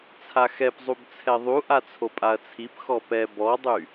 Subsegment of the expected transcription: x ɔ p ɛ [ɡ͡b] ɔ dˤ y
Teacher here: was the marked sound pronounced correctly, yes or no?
no